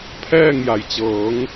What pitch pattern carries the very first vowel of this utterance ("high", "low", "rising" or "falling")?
falling